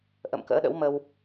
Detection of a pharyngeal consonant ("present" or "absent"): absent